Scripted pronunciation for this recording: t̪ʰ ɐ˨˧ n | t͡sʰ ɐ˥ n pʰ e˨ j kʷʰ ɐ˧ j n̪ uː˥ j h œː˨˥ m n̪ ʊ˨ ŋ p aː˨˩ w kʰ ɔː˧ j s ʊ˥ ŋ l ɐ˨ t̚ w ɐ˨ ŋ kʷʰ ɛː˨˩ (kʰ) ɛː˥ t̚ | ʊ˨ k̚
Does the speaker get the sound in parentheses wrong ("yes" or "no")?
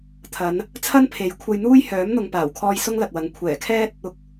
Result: no